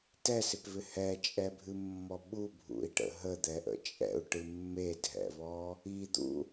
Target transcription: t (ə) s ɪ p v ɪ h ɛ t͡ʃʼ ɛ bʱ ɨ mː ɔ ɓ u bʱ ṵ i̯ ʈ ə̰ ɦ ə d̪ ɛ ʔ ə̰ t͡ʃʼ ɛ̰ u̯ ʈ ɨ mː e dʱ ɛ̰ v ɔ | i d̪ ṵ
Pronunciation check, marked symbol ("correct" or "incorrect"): incorrect